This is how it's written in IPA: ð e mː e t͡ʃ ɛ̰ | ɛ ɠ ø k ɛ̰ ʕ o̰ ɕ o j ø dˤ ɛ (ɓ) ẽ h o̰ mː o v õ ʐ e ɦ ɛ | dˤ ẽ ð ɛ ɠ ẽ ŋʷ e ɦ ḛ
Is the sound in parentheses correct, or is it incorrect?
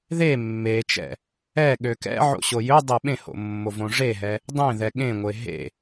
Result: correct